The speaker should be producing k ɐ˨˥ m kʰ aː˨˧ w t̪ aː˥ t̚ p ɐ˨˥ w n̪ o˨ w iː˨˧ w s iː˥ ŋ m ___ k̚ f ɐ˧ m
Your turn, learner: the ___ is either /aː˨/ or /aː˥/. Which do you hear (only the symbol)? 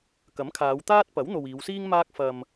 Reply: aː˥